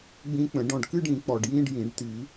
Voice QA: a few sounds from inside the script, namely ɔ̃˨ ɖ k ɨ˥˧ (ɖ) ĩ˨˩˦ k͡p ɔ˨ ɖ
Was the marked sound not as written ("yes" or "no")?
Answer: no